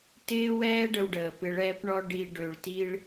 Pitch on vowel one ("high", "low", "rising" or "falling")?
high